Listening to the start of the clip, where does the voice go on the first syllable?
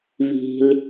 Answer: low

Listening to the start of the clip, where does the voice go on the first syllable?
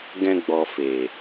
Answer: high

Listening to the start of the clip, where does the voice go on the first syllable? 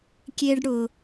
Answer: high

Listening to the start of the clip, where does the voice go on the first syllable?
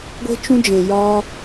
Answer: high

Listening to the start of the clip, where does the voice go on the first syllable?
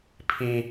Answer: low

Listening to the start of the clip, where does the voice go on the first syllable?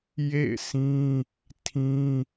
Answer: falling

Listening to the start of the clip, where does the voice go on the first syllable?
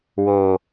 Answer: low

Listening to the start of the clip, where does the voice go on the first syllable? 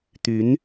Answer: rising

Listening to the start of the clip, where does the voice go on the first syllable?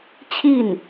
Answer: falling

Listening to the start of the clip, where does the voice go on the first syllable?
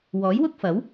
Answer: rising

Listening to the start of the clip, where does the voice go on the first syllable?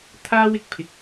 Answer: high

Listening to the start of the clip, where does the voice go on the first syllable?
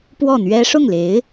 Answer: falling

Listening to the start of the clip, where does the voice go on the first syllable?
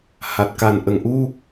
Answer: low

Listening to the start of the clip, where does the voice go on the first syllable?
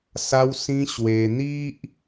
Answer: high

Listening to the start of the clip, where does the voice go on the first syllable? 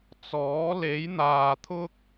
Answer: rising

